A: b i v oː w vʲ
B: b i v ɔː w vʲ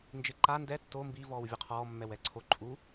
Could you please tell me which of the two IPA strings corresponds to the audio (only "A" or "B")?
B